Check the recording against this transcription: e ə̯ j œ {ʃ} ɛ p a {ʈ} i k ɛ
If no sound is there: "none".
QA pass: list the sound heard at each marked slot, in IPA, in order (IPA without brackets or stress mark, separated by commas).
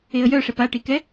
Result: ʂ, ʈ